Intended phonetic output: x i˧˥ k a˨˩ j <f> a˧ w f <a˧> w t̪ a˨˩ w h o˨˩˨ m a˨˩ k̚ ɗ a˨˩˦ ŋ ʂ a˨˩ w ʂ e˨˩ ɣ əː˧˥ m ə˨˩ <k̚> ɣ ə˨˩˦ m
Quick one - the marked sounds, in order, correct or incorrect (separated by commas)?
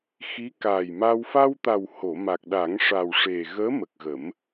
incorrect, correct, correct